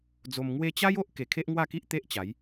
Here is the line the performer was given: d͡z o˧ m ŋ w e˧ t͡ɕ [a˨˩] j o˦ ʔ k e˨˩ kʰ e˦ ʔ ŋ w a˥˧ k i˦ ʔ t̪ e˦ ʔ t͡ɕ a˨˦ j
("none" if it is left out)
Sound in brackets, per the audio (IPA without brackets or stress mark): a˦